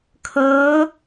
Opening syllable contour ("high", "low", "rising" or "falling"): rising